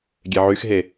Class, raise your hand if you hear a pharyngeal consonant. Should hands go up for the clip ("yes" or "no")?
yes